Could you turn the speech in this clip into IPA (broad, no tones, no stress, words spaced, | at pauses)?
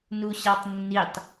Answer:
nuɕɑtˤnːitˤ